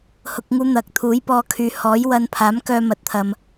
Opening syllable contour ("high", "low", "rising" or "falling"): low